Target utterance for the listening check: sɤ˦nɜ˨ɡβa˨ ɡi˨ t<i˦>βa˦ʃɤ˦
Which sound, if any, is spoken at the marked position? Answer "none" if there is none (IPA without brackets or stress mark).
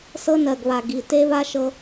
e˦